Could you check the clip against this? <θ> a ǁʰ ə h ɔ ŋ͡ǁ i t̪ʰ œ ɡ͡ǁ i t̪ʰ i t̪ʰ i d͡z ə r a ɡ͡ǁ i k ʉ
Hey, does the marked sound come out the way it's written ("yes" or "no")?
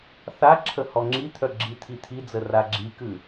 yes